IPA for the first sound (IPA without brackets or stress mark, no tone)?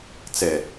t͡s